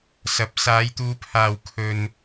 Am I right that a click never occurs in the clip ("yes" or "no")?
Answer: yes